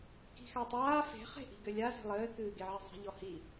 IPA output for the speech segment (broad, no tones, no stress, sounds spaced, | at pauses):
k i̤ x a tˤ aː f e̤ χ e̤ ʔ i̤ ɡ ɘ lʲ a z e̤ lˠ ɘː k ɨː ɡ e ʕ i zˤ e̤ ʎ ɔ h i